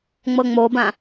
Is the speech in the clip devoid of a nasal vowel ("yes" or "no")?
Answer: no